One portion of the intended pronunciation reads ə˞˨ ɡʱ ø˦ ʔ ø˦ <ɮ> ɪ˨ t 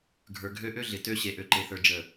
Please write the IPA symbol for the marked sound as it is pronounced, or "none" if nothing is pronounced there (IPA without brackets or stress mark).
ɮ